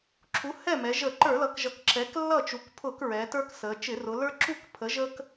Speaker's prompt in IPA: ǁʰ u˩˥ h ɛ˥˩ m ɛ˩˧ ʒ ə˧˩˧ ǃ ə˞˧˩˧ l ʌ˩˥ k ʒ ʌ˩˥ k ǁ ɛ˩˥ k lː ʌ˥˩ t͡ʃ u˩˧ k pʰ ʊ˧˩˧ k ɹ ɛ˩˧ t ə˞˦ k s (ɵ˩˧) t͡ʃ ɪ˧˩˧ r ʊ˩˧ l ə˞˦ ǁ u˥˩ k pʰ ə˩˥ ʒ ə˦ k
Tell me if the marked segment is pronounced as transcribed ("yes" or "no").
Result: no